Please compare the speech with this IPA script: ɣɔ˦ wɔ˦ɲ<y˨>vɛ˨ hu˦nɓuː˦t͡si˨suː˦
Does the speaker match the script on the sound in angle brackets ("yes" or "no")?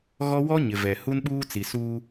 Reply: no